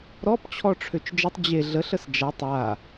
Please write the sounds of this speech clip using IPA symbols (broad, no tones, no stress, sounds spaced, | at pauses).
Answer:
ɾ ɔ p t͡ɕʰ ɔ ʈ͡ʂʰ ø t͡ʃ d͡ʒ ə tˤ d͡ʑ e ɮ ə ɬ ə s d͡ʒ a tˤ a